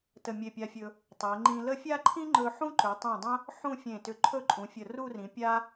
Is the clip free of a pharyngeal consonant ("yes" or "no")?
no